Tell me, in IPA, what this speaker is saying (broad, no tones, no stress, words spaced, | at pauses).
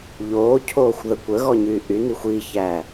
ʎoːcʰoːxʷðə kʷəɣɔɲyː ʔynixʷ içæː